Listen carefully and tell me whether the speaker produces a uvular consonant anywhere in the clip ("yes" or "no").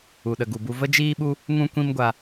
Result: no